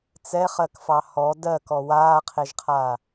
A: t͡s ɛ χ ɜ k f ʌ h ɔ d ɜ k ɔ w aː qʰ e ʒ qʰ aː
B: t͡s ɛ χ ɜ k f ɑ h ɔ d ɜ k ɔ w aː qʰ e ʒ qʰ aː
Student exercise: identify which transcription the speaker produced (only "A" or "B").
B